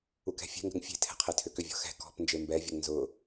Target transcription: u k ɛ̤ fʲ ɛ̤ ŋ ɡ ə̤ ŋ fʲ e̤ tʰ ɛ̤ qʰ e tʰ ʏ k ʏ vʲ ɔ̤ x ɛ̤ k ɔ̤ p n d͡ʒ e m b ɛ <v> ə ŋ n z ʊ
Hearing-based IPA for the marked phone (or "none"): vʲ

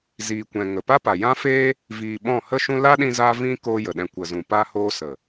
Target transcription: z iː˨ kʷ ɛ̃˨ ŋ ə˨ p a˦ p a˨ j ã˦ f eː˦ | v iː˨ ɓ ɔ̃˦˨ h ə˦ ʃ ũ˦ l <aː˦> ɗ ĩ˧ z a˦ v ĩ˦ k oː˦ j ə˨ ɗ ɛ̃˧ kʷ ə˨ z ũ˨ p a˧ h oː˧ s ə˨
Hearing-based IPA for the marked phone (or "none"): a˦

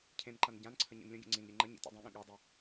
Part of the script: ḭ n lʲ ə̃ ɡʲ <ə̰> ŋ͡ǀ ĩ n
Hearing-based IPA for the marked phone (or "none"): ə̰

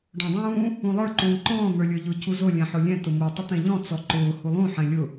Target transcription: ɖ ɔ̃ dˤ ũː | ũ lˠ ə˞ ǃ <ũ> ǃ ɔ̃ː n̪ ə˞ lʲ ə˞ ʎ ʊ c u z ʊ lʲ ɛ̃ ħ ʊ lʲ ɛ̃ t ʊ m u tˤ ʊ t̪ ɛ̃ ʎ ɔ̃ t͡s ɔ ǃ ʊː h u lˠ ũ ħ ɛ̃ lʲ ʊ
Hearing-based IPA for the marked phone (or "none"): ũː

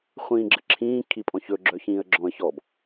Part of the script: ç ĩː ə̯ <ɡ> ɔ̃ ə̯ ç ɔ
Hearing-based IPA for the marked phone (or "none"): ɡ͡ǁ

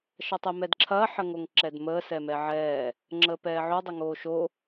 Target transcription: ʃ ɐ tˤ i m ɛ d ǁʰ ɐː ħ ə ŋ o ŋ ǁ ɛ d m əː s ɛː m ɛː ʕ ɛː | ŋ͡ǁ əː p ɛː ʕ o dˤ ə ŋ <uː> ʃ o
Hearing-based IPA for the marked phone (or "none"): oː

